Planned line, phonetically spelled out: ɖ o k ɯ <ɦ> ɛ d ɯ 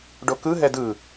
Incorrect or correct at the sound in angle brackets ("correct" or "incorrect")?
correct